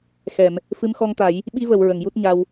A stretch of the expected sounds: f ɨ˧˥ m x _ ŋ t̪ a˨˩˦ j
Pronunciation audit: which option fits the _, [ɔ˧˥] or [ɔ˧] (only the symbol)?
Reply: ɔ˧